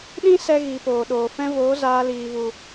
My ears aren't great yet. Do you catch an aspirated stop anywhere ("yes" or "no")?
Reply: no